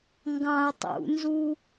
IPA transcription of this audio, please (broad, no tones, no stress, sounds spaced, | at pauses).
ŋ ɡ ɑ̃ ə̯ tˤ ṵ n z u